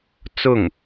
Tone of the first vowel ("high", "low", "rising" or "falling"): falling